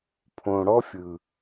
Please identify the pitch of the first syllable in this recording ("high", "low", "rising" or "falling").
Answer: low